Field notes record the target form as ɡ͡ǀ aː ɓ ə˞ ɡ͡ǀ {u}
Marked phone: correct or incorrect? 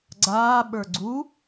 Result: correct